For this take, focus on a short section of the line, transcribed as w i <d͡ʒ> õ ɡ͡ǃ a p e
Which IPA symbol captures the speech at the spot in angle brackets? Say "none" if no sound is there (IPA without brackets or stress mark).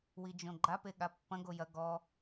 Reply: d͡ʒ